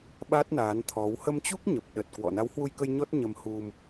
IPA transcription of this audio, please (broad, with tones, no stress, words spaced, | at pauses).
ɓa˦˥t̚naː˨˦nt̪ʰɔ˨˦w hə˧mt͡ɕu˦˥k̚ɲə˨˩p̚ ɗə˨˩t̚kwɔ̰˧˨ na˨˦whwu˧jkə˧j ɲɔ˦˥t̚ɲə˧mhu˧m